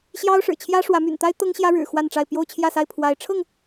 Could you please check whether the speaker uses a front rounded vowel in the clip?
yes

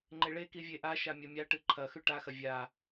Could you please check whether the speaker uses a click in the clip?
yes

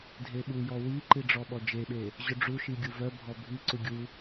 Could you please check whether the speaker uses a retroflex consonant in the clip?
yes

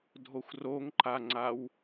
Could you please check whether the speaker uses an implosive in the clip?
no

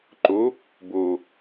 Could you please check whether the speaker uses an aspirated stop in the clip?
no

